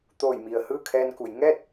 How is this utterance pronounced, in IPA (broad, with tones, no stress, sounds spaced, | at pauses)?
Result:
t̪ oː˧˩ j m i˩ ə̯ h ɯː˥˨ kʰ ɛː˧ n k u˩˧ j ŋ ɛː˥˨ t̚